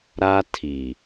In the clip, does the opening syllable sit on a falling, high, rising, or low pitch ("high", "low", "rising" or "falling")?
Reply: high